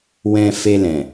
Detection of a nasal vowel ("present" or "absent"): present